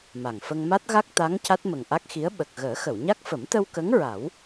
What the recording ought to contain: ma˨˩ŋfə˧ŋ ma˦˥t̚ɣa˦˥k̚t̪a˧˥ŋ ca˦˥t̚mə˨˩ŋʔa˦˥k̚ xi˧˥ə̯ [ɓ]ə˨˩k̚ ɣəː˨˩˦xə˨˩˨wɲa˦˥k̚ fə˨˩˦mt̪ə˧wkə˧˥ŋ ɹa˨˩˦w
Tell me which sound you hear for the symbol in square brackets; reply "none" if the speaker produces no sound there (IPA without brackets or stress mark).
ɓ